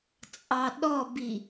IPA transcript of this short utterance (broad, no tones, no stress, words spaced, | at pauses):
t͡sʼɑɗɔbi